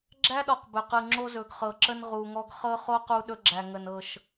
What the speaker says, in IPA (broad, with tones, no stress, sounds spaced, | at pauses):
ɡ͡ǁ æ˦ ɗ ɔ˨ q b ɵ˨ q ɯ˨ ŋ͡ǁ o˦ z ɵ˨ ɡ χ ɤ˨ ǁ ə˦ n ʁ u˨ ŋ ɔ˦ ɡ χ ɤ˦ χ o˦ q u˦ ɗ ɵ˦ ɡ͡ǁ æ˨ ŋ ə˨ n ɤ˦˨ ʃ